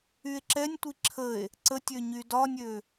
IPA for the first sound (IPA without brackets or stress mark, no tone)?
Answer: y